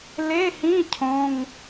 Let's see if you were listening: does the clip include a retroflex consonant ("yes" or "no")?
no